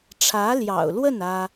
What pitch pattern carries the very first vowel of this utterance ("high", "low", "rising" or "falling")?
rising